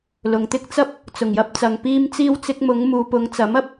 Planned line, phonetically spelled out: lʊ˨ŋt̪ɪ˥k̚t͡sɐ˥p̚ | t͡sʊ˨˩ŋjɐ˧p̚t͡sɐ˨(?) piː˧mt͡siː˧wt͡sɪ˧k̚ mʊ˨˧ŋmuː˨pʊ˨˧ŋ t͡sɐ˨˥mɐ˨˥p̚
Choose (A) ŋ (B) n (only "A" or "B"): A